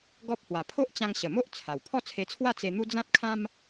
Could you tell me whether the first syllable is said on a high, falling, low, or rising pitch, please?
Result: high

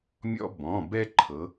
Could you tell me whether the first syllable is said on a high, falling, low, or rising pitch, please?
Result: high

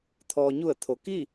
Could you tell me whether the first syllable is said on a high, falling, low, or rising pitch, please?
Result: low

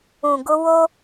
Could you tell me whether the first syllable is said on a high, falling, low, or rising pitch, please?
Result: low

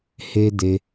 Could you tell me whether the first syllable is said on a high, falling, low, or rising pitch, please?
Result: high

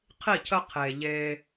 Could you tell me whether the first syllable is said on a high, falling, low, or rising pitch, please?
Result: falling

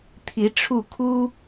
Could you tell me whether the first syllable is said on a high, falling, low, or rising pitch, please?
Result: rising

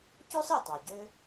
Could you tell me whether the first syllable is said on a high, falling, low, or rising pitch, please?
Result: high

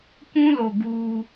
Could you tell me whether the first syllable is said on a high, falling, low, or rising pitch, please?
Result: high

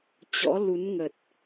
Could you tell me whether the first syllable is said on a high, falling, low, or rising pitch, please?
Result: rising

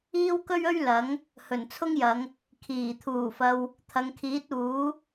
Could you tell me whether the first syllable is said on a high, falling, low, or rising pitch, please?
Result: high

